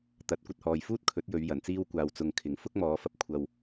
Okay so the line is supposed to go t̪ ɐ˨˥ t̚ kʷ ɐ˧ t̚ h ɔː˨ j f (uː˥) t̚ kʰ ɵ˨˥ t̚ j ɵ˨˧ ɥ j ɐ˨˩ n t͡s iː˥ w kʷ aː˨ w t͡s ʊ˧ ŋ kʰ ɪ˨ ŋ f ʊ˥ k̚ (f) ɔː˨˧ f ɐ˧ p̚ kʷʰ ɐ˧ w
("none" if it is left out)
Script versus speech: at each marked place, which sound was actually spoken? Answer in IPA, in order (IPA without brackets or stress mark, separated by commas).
uː˥, m